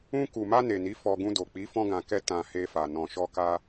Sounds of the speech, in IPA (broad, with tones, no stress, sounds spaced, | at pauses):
ũ˧ k u˨ m a˧ n e˨ n i˨˦ f ɔ˧ ɡ ũ˧ d o˨ k͡p i˨˦ f ɔ̃˧ ɡ ã˨ k ɛ˧ t ã˨ h e˧ f a˨ n ɔ̃˨ ʃ ɔ˧ k a˧